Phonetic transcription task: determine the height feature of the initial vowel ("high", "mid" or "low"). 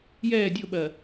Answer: mid